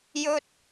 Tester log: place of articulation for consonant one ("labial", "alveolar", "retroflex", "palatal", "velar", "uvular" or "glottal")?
palatal